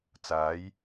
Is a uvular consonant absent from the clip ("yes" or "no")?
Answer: yes